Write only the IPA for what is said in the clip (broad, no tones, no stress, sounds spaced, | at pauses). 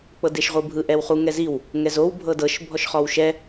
k͡p ɤ d e ʃ ʁʷ ɯ bʱ ɯ ʔ ɛ w χ u ŋ ɛ z i w | ŋ ɛ z o w bʱ ɤ d ɤ ʃ bʱ ɔ ʃ χ ɔ w ʃ ɛ